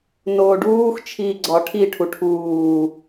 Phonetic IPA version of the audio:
n oː ɖ uː x t͡ʃʰ iː ɡ͡ǀ ɒ ʈʰ i ʈʰ u ʈʰ uː

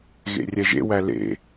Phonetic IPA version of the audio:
ɣ ḛ rʲ ɛ ʒ ḛ w æ l ḛ

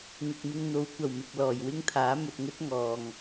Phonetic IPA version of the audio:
ŋ ɪ˨ k̚ m ɪ˧ ŋ n̪ o˨˧ w kʷ ɐ˨˩ w m ɪ˨ k̚ l ɔː˨˩ j w ɪ˥ ŋ t̪ʰ aː˨˥ m ɵ˨ t̚ ŋ ɵ˥ t̚ ŋ ɔː˨ ŋ

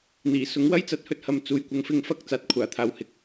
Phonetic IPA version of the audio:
n̪ iː˨˩ s ʊ˨˥ ŋ w ɐ˥ j t͡s ɐ˨˥ t̚ h ɵ˨ t̚ h ɐ˨ m t͡s uː˨ j kʷ ɐ˨˧ ŋ f ɪ˧ ŋ f ɐ˥ k̚ t͡s aː˨˥ t̚ kʷʰ aː˨˩ t̪ʰ aː˨ w h ɪ˨˥ k̚

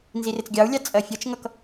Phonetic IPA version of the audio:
n z i r ɪ t͡s ɡʲ ɑ u̯ lʲ ɑ t͡sʼ ɜ fʲ ɒ t͡ʃ ŋ ʌ k

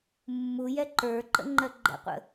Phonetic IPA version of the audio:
mː u j ɛ ǃ ə˞ ǃ ə̰ ŋ͡ǃ ɜ ɡ͡ǃ ɛ̰ qʷ ə̰

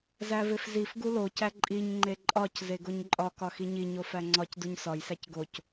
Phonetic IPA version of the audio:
z æ v e f z i f ɡ u l o c æ ǃʼ i ɲ ŋ͡ǃ e ǃʼ ɒ c z e ɡ o ɲ ǃʼ ɒ k ɒ x i ɲ i ɲ o f æ ŋ͡ǀ ɒ c d u ɲ s ɒ j s æ c ɡ o c

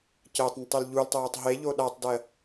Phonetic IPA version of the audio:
c əː tˤ n ə tˤ e l ʎ u l tˤ oː tˤ ɦ e ʎ o ɗ a tˤ d ɜ

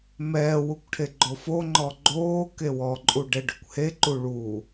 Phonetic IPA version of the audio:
m ɛː w u kʷ ʈʰ e ɡ͡ǃ o f o ŋ͡ǃ ɔ ɡ͡ǃ oː k e w ɔ ǃʼ u ɖ ɛ ɖ ɵ kʷ h e ǃ u ɭ u

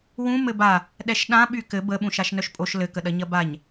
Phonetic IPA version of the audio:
w ũ m ɘ b a | ɗ ɛ ʃ ɗ ã ɓ y k ɘ b ə ɓ ũ ʃ a ʃ n œ ʃ pʼ o ʃ l ɘ k ə ɗ ɐ ɲ ɐ b a ɲ

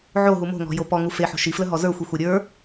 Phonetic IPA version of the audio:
ʕ o ɦ u m o̤ ŋ ɔ̤ j o p ɔ ŋ u f e ħ o̤ ʃ i f l ə ɦ ɔ z ə˞ xʷ i xʷ e ɾʲ ə˞

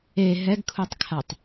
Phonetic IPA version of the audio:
e ɦ ɛ ɡ kʰ u tˤ kʰ a tˤ

